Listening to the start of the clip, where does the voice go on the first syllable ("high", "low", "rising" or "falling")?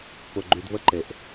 low